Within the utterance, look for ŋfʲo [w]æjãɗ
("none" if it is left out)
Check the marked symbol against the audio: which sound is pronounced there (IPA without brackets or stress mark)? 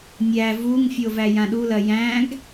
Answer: v